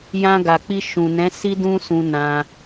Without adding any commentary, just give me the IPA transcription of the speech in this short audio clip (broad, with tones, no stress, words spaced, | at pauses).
jã˧ɡa˨k͡pi˧ ʃũ˨nɛ̃˨˦ si˦dũ˦sũ˧nã˧